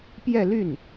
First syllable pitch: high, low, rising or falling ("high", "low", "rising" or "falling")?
falling